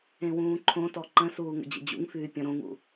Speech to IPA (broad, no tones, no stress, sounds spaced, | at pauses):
ẽ w ũː ǃʰ õ t ɔ ǃ ə̃ s uː ŋ ə̰ d͡ʑ ə̰ d͡ʑ ṵ ŋ f yː pʲ ɔ̃ ɾ õ ŋ ṵ